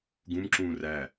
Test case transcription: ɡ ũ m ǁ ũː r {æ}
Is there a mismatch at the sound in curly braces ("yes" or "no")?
no